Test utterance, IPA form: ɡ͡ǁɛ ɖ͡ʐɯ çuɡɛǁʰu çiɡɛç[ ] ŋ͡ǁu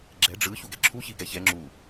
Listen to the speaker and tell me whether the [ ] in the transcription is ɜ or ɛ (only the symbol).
ɛ